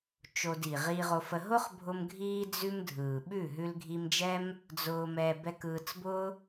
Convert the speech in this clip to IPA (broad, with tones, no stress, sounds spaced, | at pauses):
t͡ʃ o˧ d i˨ ʁ iː˧ ʁ o˧ f ə˧ ɦ ʊ˦ χ bʱ ʊ˧ m ɡʱ iː˧ d͡z ʉ˧ m dʱ ɯː˨ ɓ ʉ˦˨ ɦ ʉ˧ l ɡʱ iː˧ m d͡ʒ ɛ˦ m | d͡z ʊː˧ m ɛː˧ b ɛ˧ k ɯː˧ t͡s b ʊː˦